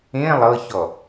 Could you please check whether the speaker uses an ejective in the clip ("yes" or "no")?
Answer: no